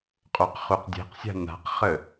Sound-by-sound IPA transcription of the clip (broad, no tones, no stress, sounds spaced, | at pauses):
qʼ o q χ u q dʲ e̤ q sʲ a̤ n a̤ q χ ə